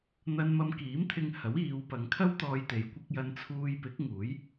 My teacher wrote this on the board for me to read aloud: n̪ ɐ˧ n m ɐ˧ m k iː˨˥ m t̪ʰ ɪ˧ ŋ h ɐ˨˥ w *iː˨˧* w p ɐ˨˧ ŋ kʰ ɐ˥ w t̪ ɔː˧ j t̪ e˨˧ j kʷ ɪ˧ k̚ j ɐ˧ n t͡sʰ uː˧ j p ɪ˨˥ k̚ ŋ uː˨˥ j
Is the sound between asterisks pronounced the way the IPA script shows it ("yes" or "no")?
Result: yes